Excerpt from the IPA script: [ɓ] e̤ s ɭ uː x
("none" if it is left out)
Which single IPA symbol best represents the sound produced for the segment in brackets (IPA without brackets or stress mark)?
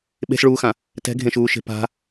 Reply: ɓ